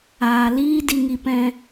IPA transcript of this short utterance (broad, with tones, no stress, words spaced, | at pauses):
aː˨liː˦ di˧ŋi˧pɛ̃˧